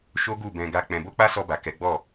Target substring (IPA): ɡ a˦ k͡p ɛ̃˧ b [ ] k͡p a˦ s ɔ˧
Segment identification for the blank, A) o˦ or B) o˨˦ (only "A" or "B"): A